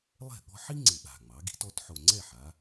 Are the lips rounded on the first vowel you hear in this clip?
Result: no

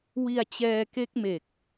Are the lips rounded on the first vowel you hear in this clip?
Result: no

